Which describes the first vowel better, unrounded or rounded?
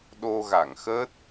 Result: rounded